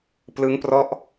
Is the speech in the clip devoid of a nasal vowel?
yes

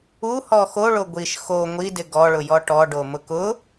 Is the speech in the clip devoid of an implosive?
yes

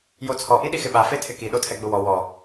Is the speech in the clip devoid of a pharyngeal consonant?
yes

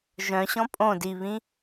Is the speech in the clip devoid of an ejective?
no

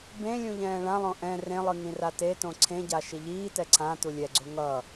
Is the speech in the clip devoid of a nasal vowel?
no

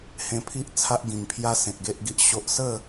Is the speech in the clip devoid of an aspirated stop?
no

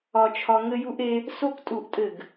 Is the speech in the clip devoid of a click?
yes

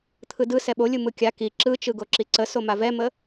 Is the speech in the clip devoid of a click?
no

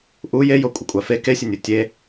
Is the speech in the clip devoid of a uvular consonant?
yes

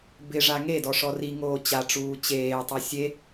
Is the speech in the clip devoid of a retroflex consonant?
no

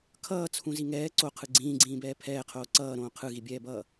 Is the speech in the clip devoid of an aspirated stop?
no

